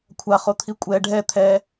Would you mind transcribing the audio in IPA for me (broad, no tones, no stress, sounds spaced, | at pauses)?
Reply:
kʷʰ a χ o t̪ʰ i kʷʼ ɛ ɖʱ ɛ t̪ʰ ɛ